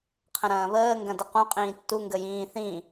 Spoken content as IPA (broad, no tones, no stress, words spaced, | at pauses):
qʰə̃ɾɐ̃ːβəː ŋɡɐ̃dəqũ qʼĩːtːu ŋɡəjĩː θĩ